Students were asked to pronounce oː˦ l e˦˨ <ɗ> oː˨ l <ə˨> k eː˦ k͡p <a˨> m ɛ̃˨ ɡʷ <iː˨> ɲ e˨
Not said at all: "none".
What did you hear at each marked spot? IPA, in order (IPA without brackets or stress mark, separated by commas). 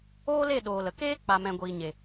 ɗ, ə˨, a˨, iː˨